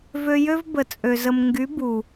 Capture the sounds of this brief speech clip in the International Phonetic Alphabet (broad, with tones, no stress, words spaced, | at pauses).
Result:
vø˧jø˦v bə˨t͡sʼø˨zə˨m ŋɡy˨˦bu˨